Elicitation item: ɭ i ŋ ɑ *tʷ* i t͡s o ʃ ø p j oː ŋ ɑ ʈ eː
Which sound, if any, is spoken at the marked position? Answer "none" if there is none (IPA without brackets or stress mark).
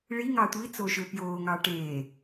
tʷ